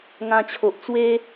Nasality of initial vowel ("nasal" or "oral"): nasal